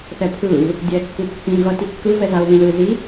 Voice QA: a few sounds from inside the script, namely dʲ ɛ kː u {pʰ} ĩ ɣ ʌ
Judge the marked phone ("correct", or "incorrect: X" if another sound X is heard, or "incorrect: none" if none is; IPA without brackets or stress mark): incorrect: pː